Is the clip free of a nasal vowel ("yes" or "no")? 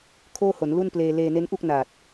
yes